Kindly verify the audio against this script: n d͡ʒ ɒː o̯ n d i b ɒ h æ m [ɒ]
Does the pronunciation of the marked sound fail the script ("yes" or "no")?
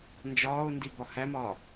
yes